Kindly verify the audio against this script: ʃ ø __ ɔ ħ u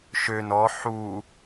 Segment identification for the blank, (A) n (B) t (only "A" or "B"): A